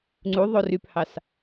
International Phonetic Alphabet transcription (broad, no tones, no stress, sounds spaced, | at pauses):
ŋ͡ǀ u ðˤ o r y p h ɑ s